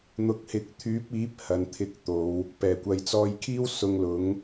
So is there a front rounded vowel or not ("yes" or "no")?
yes